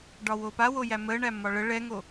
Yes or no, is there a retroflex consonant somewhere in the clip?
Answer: yes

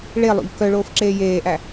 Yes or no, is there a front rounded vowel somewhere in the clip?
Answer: yes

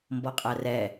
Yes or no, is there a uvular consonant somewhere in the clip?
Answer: yes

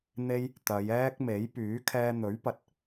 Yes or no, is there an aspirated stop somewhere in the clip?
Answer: yes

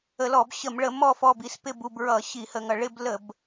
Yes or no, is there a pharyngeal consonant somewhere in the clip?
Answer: no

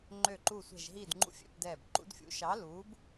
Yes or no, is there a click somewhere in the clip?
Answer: yes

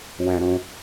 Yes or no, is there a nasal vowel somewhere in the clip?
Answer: yes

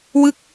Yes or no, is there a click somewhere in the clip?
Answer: no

